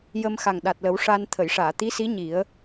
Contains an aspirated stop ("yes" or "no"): yes